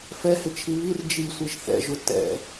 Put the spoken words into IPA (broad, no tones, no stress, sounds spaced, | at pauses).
f ɛ h ɪ t͡ʃʰ i β i r d͡ʒ i sʷ i ʒ θ ɛ̰ ʒ ʊ t ɛ̰